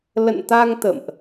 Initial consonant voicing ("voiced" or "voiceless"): voiced